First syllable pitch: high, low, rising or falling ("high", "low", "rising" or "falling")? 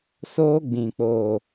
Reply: high